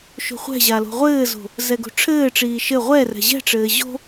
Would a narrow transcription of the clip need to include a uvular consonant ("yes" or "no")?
yes